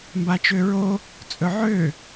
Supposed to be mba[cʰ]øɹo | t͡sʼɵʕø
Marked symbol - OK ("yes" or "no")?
no